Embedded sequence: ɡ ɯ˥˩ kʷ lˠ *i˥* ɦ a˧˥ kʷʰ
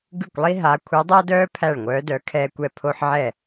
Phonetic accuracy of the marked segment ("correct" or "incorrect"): correct